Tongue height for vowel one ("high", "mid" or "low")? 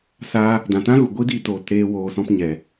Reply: low